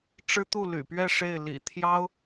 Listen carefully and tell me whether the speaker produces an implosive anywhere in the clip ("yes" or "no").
no